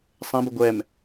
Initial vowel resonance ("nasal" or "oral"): nasal